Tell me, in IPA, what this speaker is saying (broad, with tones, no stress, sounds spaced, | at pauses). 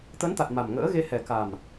t̪ ə˨˦ n t̪ a˨˩ t̚ m a˨˩ m ŋ ə̰ː˧˥ ɣ e˧ h ɛ˨˩ k a˨˩ m